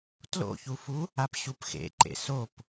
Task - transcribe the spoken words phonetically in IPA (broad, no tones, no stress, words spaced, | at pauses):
tlo̰çufu | apɕupxḛǃḛ sop